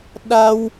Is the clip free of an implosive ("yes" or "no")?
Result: no